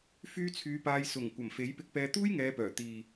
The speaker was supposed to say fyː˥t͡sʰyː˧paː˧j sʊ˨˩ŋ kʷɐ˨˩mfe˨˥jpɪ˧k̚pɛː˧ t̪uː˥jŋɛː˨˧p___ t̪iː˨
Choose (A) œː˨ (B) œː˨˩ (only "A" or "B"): B